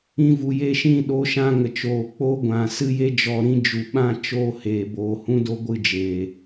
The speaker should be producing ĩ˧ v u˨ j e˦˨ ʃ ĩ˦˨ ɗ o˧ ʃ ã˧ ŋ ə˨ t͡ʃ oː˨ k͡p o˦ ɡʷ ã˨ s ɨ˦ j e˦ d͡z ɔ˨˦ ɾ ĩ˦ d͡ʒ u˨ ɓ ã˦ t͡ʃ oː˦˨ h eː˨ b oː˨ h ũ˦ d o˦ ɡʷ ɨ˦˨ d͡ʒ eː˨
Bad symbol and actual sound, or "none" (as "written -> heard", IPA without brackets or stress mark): d͡z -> d͡ʒ